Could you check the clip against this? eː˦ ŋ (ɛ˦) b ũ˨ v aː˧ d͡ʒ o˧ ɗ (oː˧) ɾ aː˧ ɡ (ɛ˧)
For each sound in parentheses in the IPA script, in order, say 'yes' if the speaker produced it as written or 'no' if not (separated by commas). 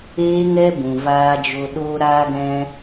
yes, yes, no